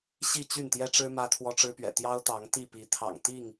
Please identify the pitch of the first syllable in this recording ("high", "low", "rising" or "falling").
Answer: falling